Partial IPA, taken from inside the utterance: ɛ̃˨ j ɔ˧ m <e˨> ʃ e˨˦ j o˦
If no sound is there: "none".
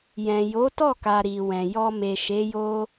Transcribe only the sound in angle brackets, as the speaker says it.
e˨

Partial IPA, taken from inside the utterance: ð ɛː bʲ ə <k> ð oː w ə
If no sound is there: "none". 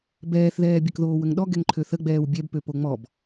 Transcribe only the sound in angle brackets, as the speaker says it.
k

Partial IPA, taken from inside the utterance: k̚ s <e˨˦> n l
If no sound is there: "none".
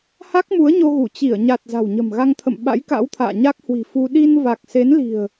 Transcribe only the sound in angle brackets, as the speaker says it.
e˨˦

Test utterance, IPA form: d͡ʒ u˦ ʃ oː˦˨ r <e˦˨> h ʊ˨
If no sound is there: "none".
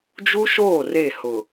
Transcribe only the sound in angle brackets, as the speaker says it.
e˦˨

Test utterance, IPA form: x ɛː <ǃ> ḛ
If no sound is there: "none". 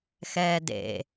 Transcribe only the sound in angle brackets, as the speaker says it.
d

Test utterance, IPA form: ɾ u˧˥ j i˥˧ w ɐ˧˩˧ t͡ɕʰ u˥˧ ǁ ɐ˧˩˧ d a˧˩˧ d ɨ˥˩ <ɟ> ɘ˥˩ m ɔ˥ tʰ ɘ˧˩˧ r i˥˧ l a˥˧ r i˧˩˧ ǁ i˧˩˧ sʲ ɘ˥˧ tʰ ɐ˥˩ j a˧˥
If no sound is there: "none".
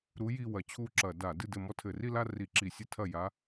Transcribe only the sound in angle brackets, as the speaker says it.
d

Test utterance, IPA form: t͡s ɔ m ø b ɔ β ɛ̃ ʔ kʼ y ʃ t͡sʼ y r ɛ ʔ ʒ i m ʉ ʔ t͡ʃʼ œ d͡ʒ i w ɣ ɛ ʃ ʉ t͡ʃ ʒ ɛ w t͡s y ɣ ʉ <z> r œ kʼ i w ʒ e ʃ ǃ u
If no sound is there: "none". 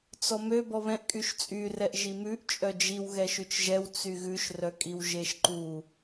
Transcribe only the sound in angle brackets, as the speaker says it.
ʃ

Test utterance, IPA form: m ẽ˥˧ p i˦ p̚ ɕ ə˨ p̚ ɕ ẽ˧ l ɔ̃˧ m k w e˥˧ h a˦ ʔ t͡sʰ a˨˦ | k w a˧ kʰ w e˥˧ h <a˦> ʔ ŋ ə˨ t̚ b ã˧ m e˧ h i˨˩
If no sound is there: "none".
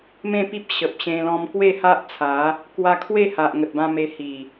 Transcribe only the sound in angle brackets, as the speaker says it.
a˨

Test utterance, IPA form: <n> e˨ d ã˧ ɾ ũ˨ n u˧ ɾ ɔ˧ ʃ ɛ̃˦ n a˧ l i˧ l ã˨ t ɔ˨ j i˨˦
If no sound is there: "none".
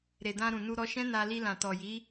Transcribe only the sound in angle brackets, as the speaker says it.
ɾ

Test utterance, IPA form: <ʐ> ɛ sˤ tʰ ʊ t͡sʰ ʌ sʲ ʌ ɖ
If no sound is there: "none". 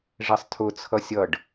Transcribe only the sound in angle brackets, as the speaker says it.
ʐ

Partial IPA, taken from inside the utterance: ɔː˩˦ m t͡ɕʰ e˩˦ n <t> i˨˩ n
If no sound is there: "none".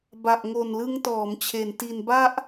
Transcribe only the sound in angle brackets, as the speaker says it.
t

